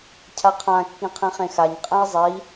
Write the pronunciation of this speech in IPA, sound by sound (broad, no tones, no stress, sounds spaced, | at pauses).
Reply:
cʰ a qʰ ã kː ĩ qʰ ĩ χ ẽ x a ɲ qʼ ɛ̃ i̯ zˤ i